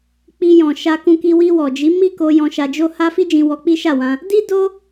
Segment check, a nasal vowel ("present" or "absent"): present